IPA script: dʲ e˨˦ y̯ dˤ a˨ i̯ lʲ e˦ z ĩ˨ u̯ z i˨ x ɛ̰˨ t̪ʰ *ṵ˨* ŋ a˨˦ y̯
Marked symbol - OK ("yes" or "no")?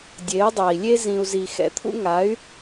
no